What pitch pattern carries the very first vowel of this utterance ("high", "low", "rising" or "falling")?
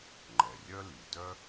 low